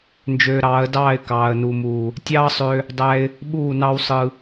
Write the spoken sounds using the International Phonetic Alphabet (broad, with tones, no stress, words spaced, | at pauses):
nd͡ʒøː˧ɾɑː˨˦ə̯dɑː˦˨ɪ̯ kɑː˨ə̯nu˨muː˨ | tʲɑː˦sˤø˧ | dˤæ˧ɪ̯ | ɓuː˦˨nɑ˦wsˤɯ˧